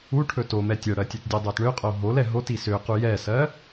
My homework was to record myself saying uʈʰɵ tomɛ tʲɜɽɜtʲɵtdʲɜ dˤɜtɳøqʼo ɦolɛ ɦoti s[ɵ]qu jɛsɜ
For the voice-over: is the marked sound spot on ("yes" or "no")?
no